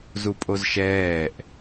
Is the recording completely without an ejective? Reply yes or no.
no